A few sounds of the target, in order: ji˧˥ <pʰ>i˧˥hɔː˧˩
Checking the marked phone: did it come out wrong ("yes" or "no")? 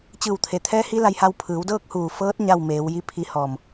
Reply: no